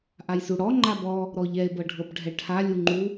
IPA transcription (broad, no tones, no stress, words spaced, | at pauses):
ʔajsuɽɔ ŋ͡ǃabɔ | ɾɔʎɛe̯ bɤɖʱɤbɖʱɛʈʰa lʲuŋ͡ǃu